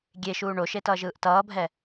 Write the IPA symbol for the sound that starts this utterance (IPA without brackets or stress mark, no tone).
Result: ɡʲ